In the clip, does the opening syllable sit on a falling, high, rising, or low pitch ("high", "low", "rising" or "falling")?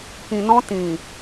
low